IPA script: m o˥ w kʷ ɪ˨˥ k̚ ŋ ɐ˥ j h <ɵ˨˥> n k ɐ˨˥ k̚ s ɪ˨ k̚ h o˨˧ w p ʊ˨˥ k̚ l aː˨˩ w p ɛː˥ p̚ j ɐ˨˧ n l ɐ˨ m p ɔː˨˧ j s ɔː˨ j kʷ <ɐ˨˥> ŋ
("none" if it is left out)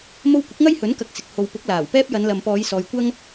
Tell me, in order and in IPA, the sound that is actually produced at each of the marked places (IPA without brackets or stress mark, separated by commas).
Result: ɵ˨˥, ɐ˥